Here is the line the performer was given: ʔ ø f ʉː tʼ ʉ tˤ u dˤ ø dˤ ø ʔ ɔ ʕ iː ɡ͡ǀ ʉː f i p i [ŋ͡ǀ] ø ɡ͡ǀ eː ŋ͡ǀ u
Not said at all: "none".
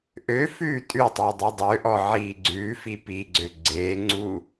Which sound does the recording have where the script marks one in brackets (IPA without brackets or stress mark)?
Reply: ɡ͡ǀ